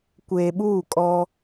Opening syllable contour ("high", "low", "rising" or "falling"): low